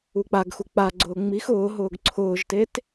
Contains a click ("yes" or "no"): yes